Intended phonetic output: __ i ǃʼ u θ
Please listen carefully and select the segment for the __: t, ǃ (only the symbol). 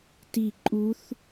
t